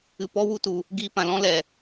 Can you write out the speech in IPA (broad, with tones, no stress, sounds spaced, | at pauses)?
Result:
ɨ˧ p ɔ˦ w u˦ t u˨ | ɡ iː˧ p ã˨ l ɔ̃˦ l ɛ˨